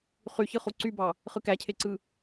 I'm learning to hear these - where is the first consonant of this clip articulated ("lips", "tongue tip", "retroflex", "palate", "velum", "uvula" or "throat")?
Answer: uvula